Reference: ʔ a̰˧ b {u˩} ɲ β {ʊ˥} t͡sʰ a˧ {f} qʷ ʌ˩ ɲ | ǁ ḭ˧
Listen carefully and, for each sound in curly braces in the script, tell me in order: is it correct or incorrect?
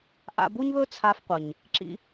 incorrect, incorrect, correct

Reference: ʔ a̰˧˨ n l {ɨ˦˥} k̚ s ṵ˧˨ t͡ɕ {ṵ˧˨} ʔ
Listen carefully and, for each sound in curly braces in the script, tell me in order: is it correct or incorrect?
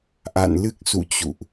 correct, correct

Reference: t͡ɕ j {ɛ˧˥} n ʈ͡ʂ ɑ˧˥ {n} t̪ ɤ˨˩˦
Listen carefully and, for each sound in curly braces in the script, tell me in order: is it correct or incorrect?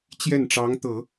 incorrect, incorrect

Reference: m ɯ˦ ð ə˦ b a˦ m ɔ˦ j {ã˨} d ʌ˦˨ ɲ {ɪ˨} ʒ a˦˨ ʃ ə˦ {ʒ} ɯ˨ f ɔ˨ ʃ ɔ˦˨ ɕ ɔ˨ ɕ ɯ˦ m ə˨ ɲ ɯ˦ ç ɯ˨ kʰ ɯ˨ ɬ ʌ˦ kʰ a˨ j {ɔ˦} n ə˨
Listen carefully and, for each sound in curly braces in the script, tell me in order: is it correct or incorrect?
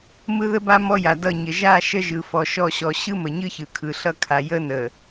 incorrect, incorrect, correct, incorrect

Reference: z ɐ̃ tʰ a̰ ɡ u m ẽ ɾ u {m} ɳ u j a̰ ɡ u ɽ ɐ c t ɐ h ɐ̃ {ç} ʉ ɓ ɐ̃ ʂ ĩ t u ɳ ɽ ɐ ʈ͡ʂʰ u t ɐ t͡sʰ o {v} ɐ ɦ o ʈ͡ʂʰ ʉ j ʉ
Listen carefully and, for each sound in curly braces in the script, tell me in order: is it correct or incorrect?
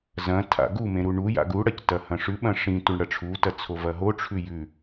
incorrect, incorrect, correct

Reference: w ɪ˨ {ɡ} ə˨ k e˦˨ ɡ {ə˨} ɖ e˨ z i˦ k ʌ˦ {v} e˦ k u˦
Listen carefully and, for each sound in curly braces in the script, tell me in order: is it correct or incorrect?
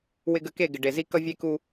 correct, incorrect, incorrect

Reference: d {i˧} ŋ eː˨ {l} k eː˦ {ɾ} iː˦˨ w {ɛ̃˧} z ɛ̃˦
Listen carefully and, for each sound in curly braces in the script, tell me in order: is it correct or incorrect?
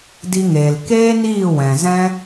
correct, correct, incorrect, incorrect

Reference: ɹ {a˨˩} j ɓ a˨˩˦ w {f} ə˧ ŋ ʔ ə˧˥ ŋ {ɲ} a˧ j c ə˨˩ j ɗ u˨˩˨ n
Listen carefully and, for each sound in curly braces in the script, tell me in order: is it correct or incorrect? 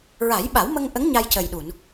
incorrect, incorrect, correct

